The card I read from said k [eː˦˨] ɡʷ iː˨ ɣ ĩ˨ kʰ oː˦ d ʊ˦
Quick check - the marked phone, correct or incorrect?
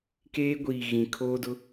incorrect